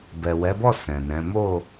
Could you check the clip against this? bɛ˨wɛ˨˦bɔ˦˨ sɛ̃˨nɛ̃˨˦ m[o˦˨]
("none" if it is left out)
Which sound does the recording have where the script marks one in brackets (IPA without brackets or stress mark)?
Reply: o˦˨